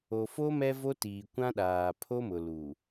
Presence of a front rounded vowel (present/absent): absent